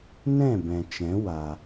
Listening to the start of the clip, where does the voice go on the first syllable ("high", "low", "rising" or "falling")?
falling